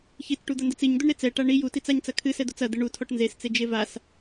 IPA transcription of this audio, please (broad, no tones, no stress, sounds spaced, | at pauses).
ç i t͡s ʈ u d̪ ɐ n d ɘ t͡s i ɲ d̪ u ɳ ɾ e t͡s ɛ ʈ a ɳ i j u t i t͡s a ɲ t͡s ɐ kʰ ɨ s ɛ d̪ o t͡s ɐ d̪ ɘ ɳ u tʰ ɔ ʈ n z e s t͡s e d͡ʒ e v a s